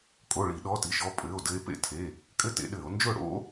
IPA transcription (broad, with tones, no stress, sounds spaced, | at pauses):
kʼ o˩˧˩ ɭ i˧˩˧ ɗ ɔ˩˧˩ t i˩˧˩ ʃ ɔ˥˨ pʼ ɘː˩˧˩ o̯ d ɘ˧ e̯ p ḛ˥˨ tʰ e˩˧˩ | kʼ ɘ˦˥ t ḛ˧ ɗ ɘː˧˩˧ o̯ n d͡ʒ ʊː˥˨ ɽ o̰˦˥